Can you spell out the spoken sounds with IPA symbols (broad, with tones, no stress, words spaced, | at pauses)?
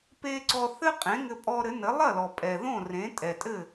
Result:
pe˧ ǀɔ˧ θɘ˥qʼẽ˩˥ŋɘ˧ pʼɔ˧ɾɘ˩˥nɘ˩˥ lˠɐ˥˩lɔ˩pʼɛ˩ ðõ˥˩rẽ˩˥tʼɛ˩ tʼɘ˥˩